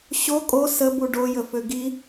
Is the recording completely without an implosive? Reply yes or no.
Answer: yes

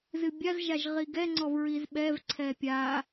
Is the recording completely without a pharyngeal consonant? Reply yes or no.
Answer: yes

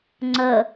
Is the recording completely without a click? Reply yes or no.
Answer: no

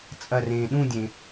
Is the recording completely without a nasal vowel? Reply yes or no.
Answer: no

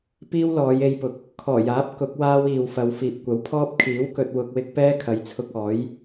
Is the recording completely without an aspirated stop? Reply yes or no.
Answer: no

